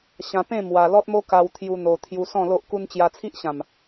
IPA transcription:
ɕ ã˧ p ẽ˥˧ m w a˧ l ɔ˦ t̚ m o˦ k a˧ w t̪ʰ j u˦ n̪ o˧ t̪ʰ j u˧ s ɔ̃˥˧ l o˦ ʔ k u˦ n t͡ɕ j a˧ t͡sʰ i˦ ʔ ɕ ã˨˩ m

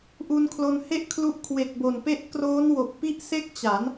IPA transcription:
ʔ u˧ n kʰ l o˧ n h e˥˩ ʔ kʰ l u˦˥ ʔ kʰ w e˨˩ k̚ b o˨˩ n p e˦˥ ʔ k r oː˦˥ n w o˨˩ k̚ p i˥˩ ʔ s e˥˩ k̚ t͡ɕ a˩˦ n

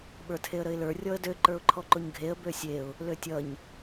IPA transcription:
ɓ ə˞ tʰ e ə̯ ɾ ə ɪ̯ l ə˞ rʲ ɔ ə̯ d ø ǃ ə˞ ʊ̯ ǃʰ ɔ ǃ o ɲ ɡʱ e ə̯ b ø sʲ e ʊ̯ | l ø tʲ ʌ ɲ

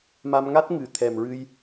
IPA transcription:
m a˧ m ŋ a˦˥ t̚ ŋ ɨ˨˩˦ t̪ʰ ɛ˨˩ m ɹ ɨ˧ j

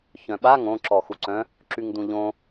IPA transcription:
ç œ̃ ɓ a ŋ õ ǁ ɔ x u ǀ œ̃ | ǁ y ŋ d̪ ũ ʎ õ

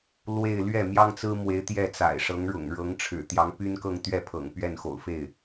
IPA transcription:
l w e˥˧ ɪ̯ l ɥ ɛ˥˩ m j ɑ˥ ŋ t͡s ɹ̩˥ m w e˧˥ ɪ̯ t̪ j ɛ˥˩ t͡s a̰˨˩ ɪ̯ ʂ ɤ˧˥ ŋ ɻ ʊ̰˨˩ ŋ ɻ ɤ˧˥ ŋ ʈ͡ʂʰ ɻ̩˨˩ t̪ j ɑ˧˥ ŋ p y˥ n k ɤ˥˧ ŋ t̪ ɥ ɛ˥˩ pʰ ɤ̰˨˩ ŋ p ɥ ɛ˥˩ n x o̰˨˩ ʊ̯ f e˥˩ ɪ̯

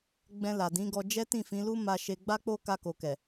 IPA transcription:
ɡ͡b ɛ̃˧ l a˨ d ĩ˨˦ ɡ ɔ˧ d͡ʒ ɛ˦ t ĩ˦˨ f ĩ˨˦ l u˦ m a˧ ʃ e˧ ɡ͡b a˦ k͡p o˦ k a˧ k o˨ k ɛ˨

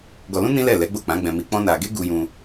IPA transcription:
ɡ ɔ˧ l ũ˦ n ĩ˦ l ɛ˦˨ l ɛ˨˦ ɡ͡b o˦˨ k͡p ã˨˦ ɡ͡b ɛ̃˧ m i˧ k͡p ɔ̃˦ n a˧ ɡ e˦ ɡ u˧ j ũ˧

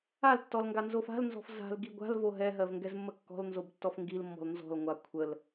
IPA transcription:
a l tː ɔ l ŋ ɡ a n z o f a̤ l n z ɔ̤ f z a̤ l ɡ i ɡʷ a̤ l v o ɦ ɛ ɦ ɜ v ŋ ɡ ɛ z mː ə kː ɔ̤ l n z o b tː ɔ f ŋ ɡ i l mː ɔ̤ l n z ɔ̤ l ŋʷ a kʷʰ ə l

